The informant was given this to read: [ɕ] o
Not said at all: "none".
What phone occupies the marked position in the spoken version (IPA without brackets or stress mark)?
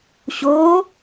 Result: ɕ